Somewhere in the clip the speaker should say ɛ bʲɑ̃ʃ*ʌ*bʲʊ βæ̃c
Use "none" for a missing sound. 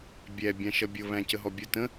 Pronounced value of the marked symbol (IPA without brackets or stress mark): ʌ